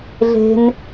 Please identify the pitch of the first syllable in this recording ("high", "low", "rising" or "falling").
high